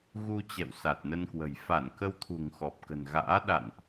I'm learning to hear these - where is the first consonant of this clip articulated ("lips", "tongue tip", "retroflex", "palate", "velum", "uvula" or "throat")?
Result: velum